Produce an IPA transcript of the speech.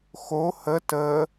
x o h ə t ə

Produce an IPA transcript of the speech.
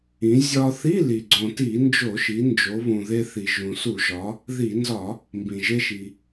ĩ˩˧ zʲ ɒ˧ θ i˧˥˧ l i˩ ɡ͡ǀ õ˩ t i˧˩˧ n d͡ʒ o˧˩˧ ʃ i˩˧ n d͡ʒ o˩˧ β ũ˩ ð e˧ θ i˩ ʒ ũ˩ s u˧˩˧ ʒ ɒ˩˧ | ð i˧˩˧ n z ɒ˧˩˧ | m b ĩ˩ ʒ e˧ ʃ i˩

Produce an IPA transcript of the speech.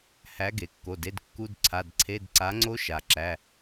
h æ˨˥ ɡ e˩ kː o˩˧˩ d e˧˥˧ d kː u˧˥˧ d ǀʰ a˩˧˩ d ǀʰ e˧˥˧ d ǀ a˨˥ ŋ͡ǀ o˦˥ ʃ a˩ ǁ æ˩˧˩

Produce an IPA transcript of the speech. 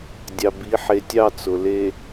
dʲ ɑ˨ b i˨˦ ħ e˨ tʲ ɑ˦˨ t͡s ʊ˨ l e˨

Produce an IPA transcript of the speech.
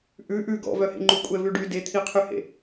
ʔ ʉ ʔ ʉ ɡ ɔ̰ v œ h ḛ ŋ͡ǃ u kʷʼ ɛ v ʉ ɖ y d e t̪ʰ i qʰ y h ḛ

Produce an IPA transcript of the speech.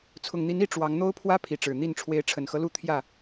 t͡sʰ ʊ˨˩ ŋ n̪ i˨˦ n i˥˨ ʈ͡ʂ w ɑ˨˦ ŋ n̪ o˦ ʊ̯ pʰ w ä˦ pʰ i˨˦ ʈ͡ʂ ɻ̩˨˩ n̪ i˥˨ n ʈ͡ʂʰ w e˨˦ ɪ̯ ʈ͡ʂʰ ə˨˩ n x ɤ˦ l u˥˨ t̪ʰ j ä˥˨

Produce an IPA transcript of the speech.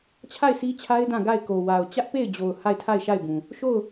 t͡ɕʰ a˦˨ ɪ̯ sʰ i˦ t͡ɕʰ a˦ ɪ̯ d ã˦˨ ɡ a˦˨ ɪ̯ k o˨ w a˨ ʊ̯ t͡ɕ ä˦ ʔ p e˦˨ ɪ̯ d͡ʑ o˨ ʊ̯ h a˦˨ ɪ̯ tʰ a˦˨ ɪ̯ ʃ a˦˨ ɪ̯ b ũ˨ | ʃ o˦˨ ʊ̯

